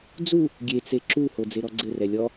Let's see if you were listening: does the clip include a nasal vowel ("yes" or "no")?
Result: no